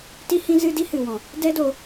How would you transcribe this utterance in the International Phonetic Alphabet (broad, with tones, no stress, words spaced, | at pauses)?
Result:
ti˦hĩ˦zɨ˦ di˦hɨ˨wɔ̃˨ | dɛ˦do˧